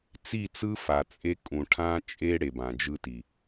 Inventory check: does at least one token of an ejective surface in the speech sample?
yes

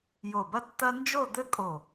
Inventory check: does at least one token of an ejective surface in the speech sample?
yes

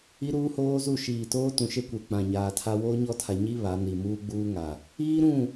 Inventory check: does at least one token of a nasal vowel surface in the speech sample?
yes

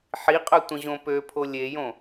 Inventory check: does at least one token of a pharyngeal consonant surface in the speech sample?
yes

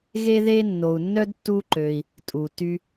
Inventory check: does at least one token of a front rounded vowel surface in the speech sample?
yes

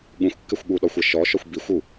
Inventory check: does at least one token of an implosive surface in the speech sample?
yes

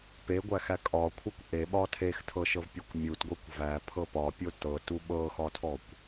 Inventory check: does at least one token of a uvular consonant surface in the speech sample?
no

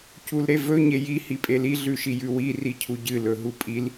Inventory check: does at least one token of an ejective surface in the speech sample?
yes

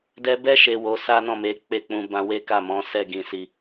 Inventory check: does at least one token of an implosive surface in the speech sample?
no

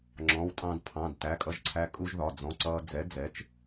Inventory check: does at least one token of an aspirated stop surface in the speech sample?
yes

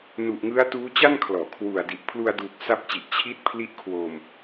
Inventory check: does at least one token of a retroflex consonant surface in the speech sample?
no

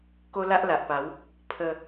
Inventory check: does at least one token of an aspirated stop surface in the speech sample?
yes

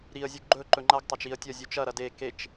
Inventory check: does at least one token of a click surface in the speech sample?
yes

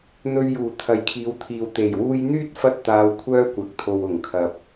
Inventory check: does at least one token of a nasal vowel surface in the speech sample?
no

